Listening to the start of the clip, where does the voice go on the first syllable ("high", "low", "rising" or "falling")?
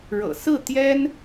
low